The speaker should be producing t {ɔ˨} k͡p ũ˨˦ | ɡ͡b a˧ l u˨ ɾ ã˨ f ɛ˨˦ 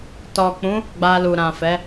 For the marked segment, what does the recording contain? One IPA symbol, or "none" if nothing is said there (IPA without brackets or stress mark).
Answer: ɔ˨